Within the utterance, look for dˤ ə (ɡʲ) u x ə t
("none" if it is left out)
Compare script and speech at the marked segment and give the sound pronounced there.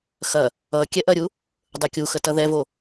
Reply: kʲ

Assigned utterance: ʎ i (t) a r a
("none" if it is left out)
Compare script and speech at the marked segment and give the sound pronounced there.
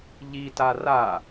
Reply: t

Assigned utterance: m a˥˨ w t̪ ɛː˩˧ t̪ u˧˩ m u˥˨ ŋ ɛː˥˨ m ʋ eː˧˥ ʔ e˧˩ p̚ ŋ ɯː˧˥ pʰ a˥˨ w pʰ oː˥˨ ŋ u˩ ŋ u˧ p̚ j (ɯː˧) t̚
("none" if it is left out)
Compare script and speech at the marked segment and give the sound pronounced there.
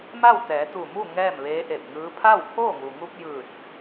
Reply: ɯː˧˩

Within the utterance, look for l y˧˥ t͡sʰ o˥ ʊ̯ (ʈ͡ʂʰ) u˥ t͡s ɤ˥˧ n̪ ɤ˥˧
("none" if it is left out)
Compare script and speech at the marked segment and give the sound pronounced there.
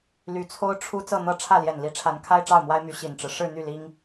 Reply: ʈ͡ʂʰ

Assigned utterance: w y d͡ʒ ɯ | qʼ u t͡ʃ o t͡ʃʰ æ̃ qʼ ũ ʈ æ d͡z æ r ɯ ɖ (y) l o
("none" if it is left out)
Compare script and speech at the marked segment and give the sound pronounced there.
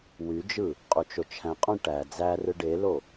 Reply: e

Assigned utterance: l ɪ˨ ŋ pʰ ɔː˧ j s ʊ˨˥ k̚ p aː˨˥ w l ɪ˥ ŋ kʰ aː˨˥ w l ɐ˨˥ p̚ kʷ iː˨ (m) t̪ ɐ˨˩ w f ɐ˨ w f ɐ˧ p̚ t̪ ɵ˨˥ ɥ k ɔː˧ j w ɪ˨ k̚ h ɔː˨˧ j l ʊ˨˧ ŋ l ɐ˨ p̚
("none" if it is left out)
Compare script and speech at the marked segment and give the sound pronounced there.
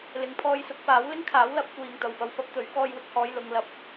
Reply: ŋ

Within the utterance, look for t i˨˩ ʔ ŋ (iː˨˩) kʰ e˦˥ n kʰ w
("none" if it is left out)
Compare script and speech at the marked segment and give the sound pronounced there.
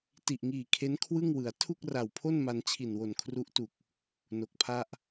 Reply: iː˨˩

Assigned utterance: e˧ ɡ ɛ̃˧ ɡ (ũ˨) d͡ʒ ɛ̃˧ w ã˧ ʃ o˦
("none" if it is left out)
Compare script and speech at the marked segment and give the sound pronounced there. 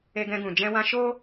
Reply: ũ˨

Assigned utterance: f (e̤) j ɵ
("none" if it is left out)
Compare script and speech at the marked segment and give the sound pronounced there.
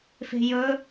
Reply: e̤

